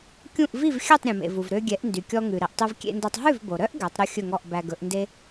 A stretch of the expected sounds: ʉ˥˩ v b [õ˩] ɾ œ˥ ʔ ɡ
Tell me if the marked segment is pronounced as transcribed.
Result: no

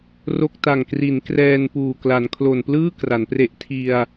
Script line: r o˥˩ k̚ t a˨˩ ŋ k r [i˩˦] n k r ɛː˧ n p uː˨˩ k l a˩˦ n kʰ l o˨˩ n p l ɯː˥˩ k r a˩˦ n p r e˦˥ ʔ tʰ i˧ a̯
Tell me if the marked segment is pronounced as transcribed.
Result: yes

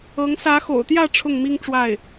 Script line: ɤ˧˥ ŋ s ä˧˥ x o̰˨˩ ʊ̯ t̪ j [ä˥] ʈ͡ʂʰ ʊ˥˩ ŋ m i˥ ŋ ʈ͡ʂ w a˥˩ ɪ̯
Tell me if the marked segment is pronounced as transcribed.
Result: no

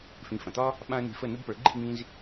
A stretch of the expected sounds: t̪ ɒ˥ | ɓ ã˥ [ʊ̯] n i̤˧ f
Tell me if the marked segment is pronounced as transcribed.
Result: no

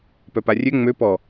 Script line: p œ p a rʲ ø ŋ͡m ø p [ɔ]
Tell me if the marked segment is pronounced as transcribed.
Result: yes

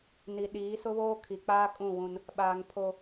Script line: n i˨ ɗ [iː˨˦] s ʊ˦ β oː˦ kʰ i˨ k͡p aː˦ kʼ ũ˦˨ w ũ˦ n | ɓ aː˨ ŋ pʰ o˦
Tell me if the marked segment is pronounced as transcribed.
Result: yes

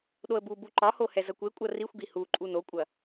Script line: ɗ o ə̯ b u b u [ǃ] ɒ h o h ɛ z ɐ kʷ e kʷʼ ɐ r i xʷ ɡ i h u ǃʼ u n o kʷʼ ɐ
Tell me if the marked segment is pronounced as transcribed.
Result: yes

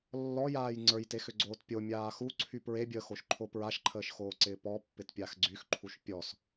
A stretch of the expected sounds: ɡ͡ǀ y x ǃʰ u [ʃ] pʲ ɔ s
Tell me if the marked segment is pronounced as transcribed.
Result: yes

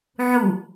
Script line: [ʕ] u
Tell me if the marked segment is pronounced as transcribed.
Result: yes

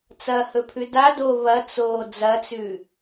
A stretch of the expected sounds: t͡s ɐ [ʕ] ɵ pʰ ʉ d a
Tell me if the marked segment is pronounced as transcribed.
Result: no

